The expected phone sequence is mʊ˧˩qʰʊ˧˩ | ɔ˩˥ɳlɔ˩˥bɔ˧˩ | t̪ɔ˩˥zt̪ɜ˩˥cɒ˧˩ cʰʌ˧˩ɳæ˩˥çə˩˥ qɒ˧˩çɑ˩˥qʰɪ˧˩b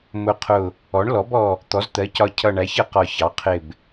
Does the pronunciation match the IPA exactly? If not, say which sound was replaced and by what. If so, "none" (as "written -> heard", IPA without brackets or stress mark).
none